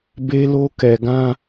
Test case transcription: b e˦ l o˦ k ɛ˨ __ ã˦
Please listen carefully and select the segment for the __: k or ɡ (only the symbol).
ɡ